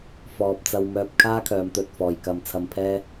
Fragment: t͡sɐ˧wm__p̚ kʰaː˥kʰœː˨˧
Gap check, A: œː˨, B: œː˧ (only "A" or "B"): B